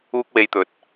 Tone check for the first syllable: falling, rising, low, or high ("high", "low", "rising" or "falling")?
high